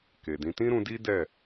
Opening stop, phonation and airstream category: plain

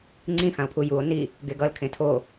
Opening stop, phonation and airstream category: click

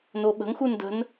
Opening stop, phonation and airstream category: implosive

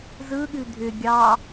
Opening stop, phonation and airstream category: implosive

